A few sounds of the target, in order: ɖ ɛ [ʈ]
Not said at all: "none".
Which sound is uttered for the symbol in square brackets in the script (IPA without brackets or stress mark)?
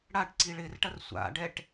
ʈ